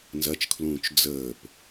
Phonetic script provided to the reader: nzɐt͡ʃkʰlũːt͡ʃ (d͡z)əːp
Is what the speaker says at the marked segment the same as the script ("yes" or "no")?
yes